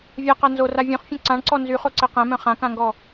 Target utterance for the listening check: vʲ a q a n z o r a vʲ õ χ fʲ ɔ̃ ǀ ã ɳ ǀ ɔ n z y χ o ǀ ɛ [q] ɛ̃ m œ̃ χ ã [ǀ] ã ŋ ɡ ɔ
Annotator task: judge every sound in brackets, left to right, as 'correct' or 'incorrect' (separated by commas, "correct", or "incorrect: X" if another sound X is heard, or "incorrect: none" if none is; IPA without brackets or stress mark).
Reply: correct, incorrect: k